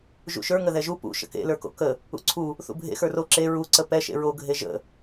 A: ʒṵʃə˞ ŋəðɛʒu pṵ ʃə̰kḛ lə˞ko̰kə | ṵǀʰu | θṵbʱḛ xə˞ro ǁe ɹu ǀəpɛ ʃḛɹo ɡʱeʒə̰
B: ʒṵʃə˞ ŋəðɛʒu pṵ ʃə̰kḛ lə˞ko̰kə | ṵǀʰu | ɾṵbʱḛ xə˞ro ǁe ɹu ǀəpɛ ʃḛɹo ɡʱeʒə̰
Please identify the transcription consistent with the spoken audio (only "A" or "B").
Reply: A